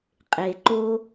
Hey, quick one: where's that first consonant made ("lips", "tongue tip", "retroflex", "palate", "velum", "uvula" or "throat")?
uvula